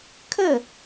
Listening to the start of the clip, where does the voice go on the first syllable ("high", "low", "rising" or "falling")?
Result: falling